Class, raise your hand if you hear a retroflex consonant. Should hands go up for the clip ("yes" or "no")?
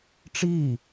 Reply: yes